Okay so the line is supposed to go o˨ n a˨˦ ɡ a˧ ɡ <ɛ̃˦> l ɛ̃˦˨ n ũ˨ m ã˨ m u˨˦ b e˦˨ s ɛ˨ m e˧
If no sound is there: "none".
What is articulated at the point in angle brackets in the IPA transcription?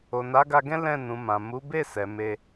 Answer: ɛ̃˦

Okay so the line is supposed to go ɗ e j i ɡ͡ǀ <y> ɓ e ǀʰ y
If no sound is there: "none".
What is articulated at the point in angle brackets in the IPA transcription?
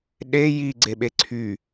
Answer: e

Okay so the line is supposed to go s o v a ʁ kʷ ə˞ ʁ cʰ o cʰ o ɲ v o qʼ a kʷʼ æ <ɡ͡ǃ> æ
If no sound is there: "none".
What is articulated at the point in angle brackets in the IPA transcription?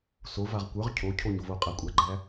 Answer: ɡ͡ǃ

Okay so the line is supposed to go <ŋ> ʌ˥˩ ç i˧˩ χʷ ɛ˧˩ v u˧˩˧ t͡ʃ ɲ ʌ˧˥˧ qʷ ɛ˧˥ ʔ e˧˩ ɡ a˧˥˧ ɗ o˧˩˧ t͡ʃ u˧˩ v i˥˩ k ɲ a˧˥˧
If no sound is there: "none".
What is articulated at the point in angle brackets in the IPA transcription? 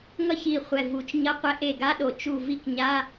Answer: ŋ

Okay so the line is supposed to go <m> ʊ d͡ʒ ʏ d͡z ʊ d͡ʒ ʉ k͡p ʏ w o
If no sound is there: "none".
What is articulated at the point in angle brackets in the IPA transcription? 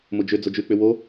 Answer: m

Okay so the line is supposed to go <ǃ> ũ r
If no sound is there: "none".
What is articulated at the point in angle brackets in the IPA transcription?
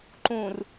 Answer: ǃ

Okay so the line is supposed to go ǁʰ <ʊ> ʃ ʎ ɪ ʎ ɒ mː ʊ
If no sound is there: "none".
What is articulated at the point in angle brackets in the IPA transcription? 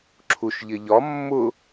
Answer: u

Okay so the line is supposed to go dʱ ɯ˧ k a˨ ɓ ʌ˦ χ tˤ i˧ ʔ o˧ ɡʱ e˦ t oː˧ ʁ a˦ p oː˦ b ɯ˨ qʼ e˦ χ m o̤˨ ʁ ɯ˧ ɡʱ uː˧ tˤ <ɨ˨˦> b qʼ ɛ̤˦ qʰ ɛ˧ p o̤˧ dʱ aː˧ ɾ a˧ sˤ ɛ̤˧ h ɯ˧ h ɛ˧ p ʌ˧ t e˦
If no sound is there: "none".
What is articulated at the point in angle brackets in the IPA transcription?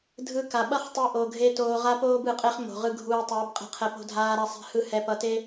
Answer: e˨˦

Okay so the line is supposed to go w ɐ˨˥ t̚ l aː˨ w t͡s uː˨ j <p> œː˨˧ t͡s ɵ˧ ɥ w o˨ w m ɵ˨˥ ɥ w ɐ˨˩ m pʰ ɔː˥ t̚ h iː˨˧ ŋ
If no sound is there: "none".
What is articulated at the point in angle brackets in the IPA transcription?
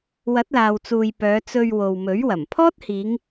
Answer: p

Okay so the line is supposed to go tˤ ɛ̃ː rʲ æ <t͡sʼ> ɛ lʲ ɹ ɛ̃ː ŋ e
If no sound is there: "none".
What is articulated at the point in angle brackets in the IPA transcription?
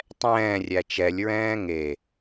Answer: t͡ʃ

